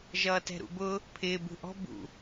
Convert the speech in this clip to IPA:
ʒʌːtɛ̤ɾṵbʊ | pʰɪː bṳʔɔ̤ bṵ

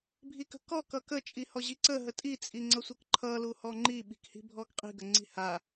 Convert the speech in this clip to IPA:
bʱikə̤kɔ kʌkə t͡ʃʼihɔʑiǀə ɦətʼi t͡sʼiŋ͡ǀʌsʷəkǃʰʌ luhɔŋ͡ǃi ɓi̤khi̤bʱɔɡqʼi̤ ɡəŋ͡ǀi̤ha

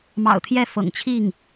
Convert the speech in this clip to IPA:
mɑ̰˨˩ʊ̯t̪ʰjɛ˥˩ fɤ̰˨˩ŋt͡ɕʰi˥˩ŋ

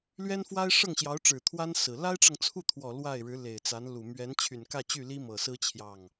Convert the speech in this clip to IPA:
lɥɛ˥nfwa˥ɪ̯ ʂɤ˥˩ŋɕjɑ˧˥ʊ̯ʈ͡ʂɻ̩˨˩t̪ʰwa˥n sɹ̩˨˩ la˥ɪ̯ʈ͡ʂɤ˨ŋt͡sʰu˥˩t̪ʰwɔ˨˩ lwa˥˩ɪ̯ɻɻ̩˧˥ le˨˩ɪ̯t͡sa˧˥nlu˨˩ mɥɛ˧˥nt͡ɕʰy˨˩nkä˥˧t͡ɕy˥˩ li˥mɤ˨˩sɹ̩˥ t͡ɕʰjɑ˥˩ŋ

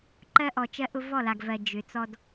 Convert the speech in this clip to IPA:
ǃɜ˦ʔɔ˨t͡ʃɜ˦ʔʊ˦ vɔ˦˨la˨ɡvɜ˨ d͡ʒʏ˨˦t͡sɔ˦d

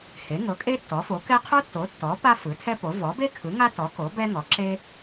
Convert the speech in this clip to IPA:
he˩˥ŋɤ˩˥kʼe˥ tːɔ˩˥fo˩˥kɛ˥ qʰo˥tːo˩˥tːɔ˩˥ pa˥fɯ˩˥tʰɛ˥po˩˥ vɔ˩˥be˥kʰɯ˩˥ ŋa˥tɔ˩˥ko˩˥ bɛ˥ ŋɔ˩˥ǁe˥

